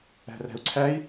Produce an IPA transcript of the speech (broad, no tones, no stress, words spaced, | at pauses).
æ̤ræ̤u̯ǀʰæi̯